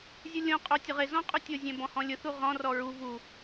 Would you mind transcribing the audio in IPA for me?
zʲ u lʲ õ qʼ o tʲ ʊ ʁ ɪ z ɔ̃ qʼ u tʲ ʊ zʲ ɛ̃ b ɔ̃ h ɔ̃ lʲ ʊ θ u ʁ ɔ̃ r ɔ ɹ u v u

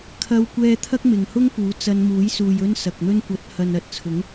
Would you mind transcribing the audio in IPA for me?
kʰ ɐ˥ w kʷ ɛː˥ t̪ʰ ɐ˥ k̚ m ɪ˨ ŋ h ʊ˥ ŋ p uː˨˥ t͡s ɐ˧ n m uː˨˥ j s uː˨ j ɵ˥ n s ɐ˨ k̚ n̪ ɵ˥ n kʷ ɐ˨˥ t̚ h ɐ˨ n ɐ˨ t̚ t͡sʰ ʊ˨˥ ŋ

